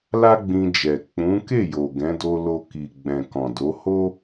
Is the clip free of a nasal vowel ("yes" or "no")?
no